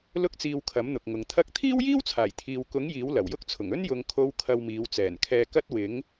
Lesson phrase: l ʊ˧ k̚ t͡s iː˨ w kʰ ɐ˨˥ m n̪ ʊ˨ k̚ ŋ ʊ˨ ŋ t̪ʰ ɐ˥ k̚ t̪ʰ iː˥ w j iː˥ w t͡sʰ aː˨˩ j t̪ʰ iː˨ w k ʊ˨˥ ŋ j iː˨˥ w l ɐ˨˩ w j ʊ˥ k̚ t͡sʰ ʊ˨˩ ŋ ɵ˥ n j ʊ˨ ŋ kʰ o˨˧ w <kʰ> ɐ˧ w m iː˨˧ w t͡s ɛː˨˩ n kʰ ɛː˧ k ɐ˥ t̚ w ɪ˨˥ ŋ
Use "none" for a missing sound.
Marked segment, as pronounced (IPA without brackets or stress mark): kʰ